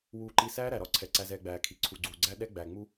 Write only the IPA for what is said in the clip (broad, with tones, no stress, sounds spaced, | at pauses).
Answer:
w uː˨ ǃ i˨ s æː˦ ɾ æ˨ ɾ ɒ˦ ǀʰ ɛ˨ ǀ æ˨ z ɛː˨ ɡ͡b æː˨ kʰ i˨ ǀʰ u˨ ɡ͡ǀ uː˨ ɡ͡ǀ æ˦ ɗ ɛ˦ ɡ͡b æ˨ ŋ͡m u˦